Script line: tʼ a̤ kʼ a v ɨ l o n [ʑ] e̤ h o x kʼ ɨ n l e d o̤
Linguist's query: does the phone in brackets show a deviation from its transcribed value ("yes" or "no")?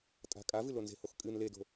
yes